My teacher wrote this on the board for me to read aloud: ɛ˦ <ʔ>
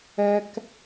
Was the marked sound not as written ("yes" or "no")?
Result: yes